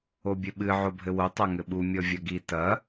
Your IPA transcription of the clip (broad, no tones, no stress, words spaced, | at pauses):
obʲɘɓɨ ʕobʱɘwo tˤaŋɘɓu mʲɔvʲɐɡi tɐ